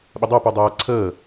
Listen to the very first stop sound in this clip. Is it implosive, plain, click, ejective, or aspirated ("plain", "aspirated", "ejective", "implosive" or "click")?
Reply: implosive